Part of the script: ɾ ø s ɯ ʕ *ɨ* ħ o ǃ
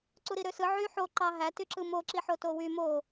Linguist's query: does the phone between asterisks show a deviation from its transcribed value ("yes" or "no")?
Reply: yes